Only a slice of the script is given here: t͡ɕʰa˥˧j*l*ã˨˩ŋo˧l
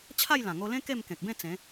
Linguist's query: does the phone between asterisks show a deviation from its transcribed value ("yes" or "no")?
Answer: no